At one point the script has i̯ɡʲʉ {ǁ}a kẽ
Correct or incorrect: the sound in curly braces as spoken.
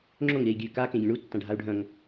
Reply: incorrect: k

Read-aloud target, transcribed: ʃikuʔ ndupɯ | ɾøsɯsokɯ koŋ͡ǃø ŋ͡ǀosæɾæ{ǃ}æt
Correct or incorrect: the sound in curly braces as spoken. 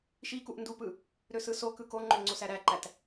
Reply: correct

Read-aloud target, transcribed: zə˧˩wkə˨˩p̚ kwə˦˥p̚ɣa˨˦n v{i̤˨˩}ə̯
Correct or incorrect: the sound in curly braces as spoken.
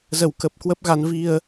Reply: incorrect: i˧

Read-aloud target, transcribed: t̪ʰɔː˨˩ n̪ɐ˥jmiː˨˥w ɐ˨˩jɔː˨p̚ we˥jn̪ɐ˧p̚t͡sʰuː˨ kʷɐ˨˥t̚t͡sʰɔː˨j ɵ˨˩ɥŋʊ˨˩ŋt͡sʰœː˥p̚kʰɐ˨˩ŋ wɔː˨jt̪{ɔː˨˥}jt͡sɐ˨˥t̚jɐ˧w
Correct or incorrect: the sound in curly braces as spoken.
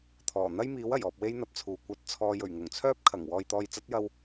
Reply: incorrect: ɔː˨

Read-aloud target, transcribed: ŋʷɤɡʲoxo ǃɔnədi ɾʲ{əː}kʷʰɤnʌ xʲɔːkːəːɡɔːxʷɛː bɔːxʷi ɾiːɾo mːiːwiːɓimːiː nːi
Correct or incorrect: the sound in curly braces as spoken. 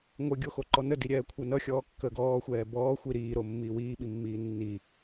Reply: incorrect: ɛː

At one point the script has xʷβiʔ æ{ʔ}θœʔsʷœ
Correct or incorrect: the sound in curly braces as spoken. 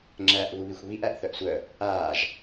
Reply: correct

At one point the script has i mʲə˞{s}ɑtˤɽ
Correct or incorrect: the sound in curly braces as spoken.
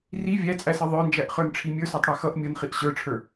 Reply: correct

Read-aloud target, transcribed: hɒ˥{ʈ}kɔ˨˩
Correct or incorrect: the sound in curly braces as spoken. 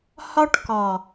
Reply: correct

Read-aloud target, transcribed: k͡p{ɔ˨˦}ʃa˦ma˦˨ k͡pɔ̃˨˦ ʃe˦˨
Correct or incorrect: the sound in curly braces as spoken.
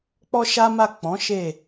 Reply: incorrect: ɔ˦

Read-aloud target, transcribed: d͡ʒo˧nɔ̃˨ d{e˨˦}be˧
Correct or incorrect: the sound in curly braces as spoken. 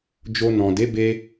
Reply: correct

